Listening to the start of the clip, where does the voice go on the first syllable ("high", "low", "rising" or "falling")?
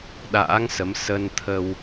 rising